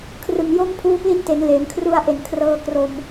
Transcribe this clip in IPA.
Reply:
kʰ r ɯ˨˩ ŋ j o˥˩ m pʰ uː˧ p l i˦˥ n t e˩˦ n l eː˩˦ m kʰ r u˧ a̯ ʔ e˨˩ n kʰ r ɤː˧ k r o˧ m

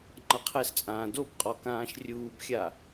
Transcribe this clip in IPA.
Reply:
ŋ͡ǃ ʌ qʰ ɛ s t͡sʼ ãː d o b qʼ ɔ k ãː ʃ rʲ uː b xʲ a

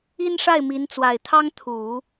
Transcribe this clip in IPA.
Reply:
i˥ n ʂ a˥˩ ɪ̯ m i˧˥ n t͡s w a˨˩ ɪ̯ t̪ʰ ɑ˥ ŋ t̪ʰ u˨˩˦

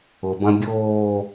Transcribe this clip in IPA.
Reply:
ʊ b ɐ̃ bʲ oː

